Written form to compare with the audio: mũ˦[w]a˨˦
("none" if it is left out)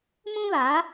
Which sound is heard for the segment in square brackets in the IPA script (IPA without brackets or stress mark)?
β